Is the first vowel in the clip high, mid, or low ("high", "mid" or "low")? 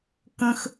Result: mid